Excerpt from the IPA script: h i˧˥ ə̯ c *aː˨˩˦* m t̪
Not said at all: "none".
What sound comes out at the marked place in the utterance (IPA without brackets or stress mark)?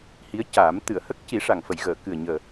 aː˨˩˦